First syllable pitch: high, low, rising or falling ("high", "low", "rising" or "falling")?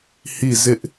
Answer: falling